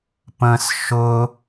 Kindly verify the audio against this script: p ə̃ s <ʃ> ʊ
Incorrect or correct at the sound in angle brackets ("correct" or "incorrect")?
correct